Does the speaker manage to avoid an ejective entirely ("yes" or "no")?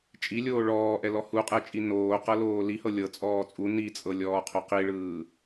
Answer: no